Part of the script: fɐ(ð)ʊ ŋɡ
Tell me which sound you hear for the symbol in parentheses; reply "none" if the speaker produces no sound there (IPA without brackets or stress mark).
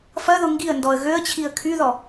ð